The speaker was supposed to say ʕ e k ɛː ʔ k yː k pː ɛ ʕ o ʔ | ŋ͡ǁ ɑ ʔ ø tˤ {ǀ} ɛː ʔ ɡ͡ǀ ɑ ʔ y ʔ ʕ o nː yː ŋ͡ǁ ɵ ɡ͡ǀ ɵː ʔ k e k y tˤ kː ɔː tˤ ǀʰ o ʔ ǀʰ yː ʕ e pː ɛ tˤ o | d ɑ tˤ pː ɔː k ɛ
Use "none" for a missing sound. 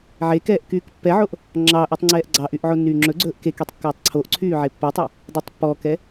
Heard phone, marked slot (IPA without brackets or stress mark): ŋ͡ǀ